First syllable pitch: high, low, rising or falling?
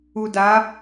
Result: low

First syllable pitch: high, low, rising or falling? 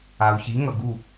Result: low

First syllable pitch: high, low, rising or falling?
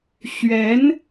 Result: rising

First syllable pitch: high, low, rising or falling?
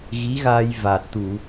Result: rising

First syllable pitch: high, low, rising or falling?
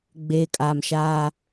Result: low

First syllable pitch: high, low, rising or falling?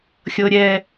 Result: high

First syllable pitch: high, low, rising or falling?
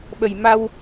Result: low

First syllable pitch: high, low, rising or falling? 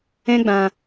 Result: high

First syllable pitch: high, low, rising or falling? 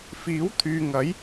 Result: rising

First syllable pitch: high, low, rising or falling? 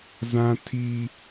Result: high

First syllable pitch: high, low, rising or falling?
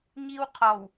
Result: high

